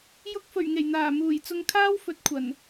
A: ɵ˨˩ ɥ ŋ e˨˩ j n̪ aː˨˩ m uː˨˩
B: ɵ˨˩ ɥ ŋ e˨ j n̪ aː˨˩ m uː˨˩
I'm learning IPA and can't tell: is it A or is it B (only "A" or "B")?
A